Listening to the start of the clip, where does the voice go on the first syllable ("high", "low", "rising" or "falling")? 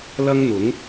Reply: high